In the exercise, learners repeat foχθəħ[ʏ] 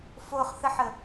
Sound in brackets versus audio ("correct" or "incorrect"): incorrect